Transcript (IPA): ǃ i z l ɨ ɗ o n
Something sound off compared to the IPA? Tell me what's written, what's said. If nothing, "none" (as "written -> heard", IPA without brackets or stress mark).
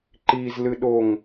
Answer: n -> ŋ